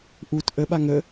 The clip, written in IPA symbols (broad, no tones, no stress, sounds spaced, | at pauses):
ʔ u t ʔ ə ɓ a ŋ ə